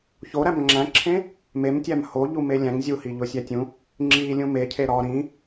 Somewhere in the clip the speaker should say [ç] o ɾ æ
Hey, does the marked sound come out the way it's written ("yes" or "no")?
yes